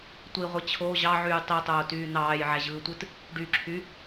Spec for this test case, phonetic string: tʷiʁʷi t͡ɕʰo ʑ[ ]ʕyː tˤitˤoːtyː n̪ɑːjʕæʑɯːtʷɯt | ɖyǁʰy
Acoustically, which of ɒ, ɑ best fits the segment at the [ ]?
ɑ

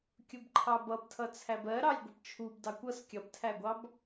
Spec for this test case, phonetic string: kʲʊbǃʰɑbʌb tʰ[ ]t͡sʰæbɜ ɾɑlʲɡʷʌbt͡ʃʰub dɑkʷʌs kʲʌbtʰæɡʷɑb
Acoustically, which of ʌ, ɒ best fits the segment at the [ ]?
ʌ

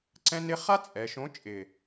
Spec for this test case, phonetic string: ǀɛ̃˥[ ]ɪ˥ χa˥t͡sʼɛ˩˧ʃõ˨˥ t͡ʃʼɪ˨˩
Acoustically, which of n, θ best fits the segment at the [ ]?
n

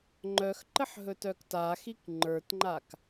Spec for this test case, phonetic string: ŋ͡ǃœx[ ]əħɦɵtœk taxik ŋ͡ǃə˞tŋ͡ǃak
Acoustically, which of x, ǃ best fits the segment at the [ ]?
ǃ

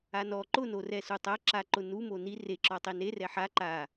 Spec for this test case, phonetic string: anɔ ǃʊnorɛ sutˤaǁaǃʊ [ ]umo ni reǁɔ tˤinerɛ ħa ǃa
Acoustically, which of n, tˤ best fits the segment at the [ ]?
n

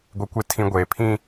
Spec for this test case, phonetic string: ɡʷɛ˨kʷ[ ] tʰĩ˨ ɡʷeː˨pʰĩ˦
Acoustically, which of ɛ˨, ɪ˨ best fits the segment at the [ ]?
ɪ˨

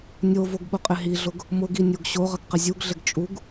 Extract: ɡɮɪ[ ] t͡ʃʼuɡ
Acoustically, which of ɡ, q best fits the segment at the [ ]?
ɡ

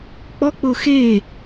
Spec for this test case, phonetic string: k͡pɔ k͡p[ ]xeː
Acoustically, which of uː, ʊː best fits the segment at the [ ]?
ʊː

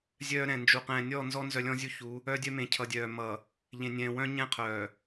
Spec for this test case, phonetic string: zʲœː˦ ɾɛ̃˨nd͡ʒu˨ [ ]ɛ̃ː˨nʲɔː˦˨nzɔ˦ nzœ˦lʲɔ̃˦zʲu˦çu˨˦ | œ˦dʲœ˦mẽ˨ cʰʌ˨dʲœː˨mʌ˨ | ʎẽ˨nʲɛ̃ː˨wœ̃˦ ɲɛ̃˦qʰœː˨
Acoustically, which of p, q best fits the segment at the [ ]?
q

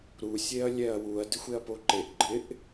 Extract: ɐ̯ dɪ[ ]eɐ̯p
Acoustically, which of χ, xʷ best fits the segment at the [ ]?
xʷ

